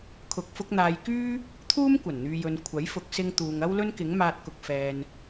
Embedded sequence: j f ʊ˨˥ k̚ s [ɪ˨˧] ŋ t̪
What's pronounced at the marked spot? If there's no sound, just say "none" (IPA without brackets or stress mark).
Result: ɪ˧